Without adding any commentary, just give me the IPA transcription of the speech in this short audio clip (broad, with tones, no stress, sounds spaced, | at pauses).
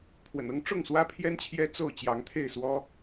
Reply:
pʰ w ə̰˨˩ n ɤ˦ ŋ ʈ͡ʂ ʊ˥˨ ŋ s w ä˦ pʰ j ɛ˦ n t͡ɕʰ j ɛ˦ t͡s o˥˨ ʊ̯ t͡ɕ j ɑ˨˦ ŋ t̪ʰ e˥˨ ɪ̯ s w ɔ˦